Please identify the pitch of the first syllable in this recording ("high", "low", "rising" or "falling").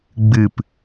falling